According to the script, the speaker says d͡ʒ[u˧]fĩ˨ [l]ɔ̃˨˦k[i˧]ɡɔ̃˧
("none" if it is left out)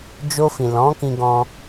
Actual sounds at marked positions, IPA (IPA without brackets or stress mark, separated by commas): o˧, l, ĩ˧